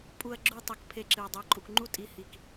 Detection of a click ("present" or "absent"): present